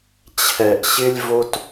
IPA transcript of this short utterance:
t͡ɕʰ ɛ˨ ʔ ɕ ɪ˦ lʲ v o˦ t

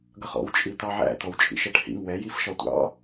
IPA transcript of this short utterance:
ɡ ʌ χ ɔ̰ w t͡ʃʼ i t̪ ɑ ʕ æ̰ t̪ ɔ w t͡ʃʼ ḭ ʃ ɛ ʈ h ḭ ŋ w ɛ j i f ʃ ɒ tʷ ɑ̰

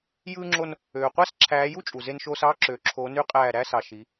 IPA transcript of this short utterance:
j ɯː˦ ŋ͡ǁ o˦ n | øː˨ qʷ æ˦ s ǁʰ æː˨˦ j u˦ t͡ʃʼ u˨ z e˦ n ʃ oː˦ s ɑː˦ ǁ øː˨ ǁʰ oː˨˦ n y˦ qʼ æː˦˨ ɾ æ˦ s ɑ˨ ʃ i˨˦

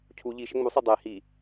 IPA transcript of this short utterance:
cʰ u ʎ i ʃ ɛ ŋ͡m u sˤ i dˤ ɛ h i

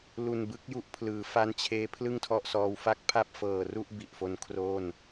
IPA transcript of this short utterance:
l u˨˩ n b ɯ˦˥ k̚ j u˦˥ ʔ pʰ l ɯː˩˦ f a˦˥ n t͡ɕʰ eː˦˥ pʰ l ɯ˥˩ ŋ tʰ ɔ˦˥ ʔ s ɔː˧ w f a˥˩ k̚ pʰ a˥˩ p̚ f ɤː˨˩ r u˥˩ ʔ b i˨˩ ʔ f o˦˥ n kʰ r oː˥˩ n

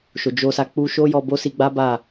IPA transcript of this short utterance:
ʃ o˨ d͡ʒ o˧ s a˧ k͡p u˧ ʃ o˦ j ɔ˧ b o˦ s i˧ ɡ͡b a˦ b a˦˨

